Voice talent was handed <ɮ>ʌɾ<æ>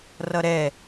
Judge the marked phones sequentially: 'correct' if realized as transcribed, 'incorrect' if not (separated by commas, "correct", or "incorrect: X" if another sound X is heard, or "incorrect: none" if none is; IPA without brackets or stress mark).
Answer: incorrect: r, incorrect: ɛ